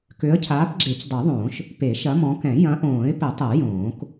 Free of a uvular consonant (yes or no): yes